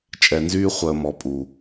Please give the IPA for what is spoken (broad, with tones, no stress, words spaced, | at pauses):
t͡ʃʼɛ˨nzyː˦χʷəː˨ mɔ˨pʼu˨